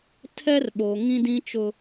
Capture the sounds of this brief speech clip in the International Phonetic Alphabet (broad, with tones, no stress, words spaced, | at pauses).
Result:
tʰɛ˦rɓo˨ ŋĩ˦dĩ˦t͡ʃʊ˦